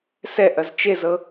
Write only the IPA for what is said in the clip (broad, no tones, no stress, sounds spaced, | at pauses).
s ɛ ʔ ɐ z t͡ʃ e z ɤ